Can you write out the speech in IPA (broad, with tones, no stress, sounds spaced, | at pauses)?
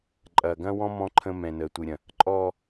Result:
ǃʼ ɐː˨ ɡ ɐ̃ː˦ w ɔ̃˦ m ɔ̃˦ ǃʰ ə̃˦ m ɛ̃˨ n əː˨ tʷ ɨ˨ ɾʲ ɐ̃˨ | ǃʼ ɔː˨